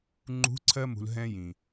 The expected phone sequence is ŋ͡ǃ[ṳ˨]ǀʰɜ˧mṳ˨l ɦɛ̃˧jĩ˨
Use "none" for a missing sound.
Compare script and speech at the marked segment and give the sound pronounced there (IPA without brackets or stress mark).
ṳ˨˦